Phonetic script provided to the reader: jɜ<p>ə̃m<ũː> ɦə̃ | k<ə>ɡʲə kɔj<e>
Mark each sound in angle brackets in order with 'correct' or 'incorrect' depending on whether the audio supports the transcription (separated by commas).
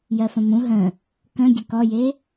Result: incorrect, incorrect, incorrect, correct